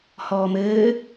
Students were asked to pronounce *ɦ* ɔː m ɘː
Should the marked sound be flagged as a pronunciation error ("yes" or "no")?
yes